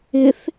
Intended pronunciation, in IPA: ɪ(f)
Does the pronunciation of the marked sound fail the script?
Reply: yes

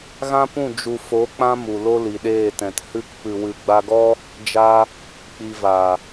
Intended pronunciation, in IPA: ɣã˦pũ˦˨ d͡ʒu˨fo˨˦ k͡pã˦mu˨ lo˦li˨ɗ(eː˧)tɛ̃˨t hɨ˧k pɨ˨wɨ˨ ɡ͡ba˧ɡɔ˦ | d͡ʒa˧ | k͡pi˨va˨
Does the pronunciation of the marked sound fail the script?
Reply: yes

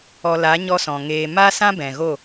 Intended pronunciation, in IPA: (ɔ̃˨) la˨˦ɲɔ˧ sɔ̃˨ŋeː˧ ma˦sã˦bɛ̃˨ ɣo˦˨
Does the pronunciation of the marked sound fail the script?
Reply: yes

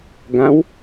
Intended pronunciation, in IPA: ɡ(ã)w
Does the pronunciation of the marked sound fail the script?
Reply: no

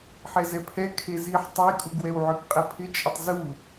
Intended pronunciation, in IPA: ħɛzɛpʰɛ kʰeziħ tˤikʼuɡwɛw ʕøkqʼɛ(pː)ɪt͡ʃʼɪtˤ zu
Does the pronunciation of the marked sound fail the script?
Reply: yes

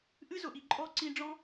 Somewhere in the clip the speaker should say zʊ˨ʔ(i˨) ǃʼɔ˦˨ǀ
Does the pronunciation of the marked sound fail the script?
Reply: no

